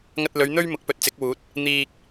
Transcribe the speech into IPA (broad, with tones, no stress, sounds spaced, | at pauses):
ŋ ɐ˧ t̚ l ɵ˨˧ ɥ n̪ ɵ˥ ɥ m ʊ˨˥ k̚ p ɵ˨ t̚ t͡s ɪ˨˥ k̚ w uː˨˥ t̚ | n̪ iː˧ k̚